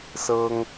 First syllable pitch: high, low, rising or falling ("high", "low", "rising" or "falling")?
high